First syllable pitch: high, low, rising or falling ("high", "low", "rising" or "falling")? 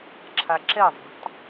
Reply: low